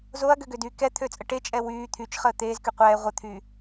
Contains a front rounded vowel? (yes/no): yes